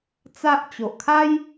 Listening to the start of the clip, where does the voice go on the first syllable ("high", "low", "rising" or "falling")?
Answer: high